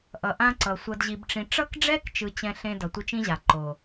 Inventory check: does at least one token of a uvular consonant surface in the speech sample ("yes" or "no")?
no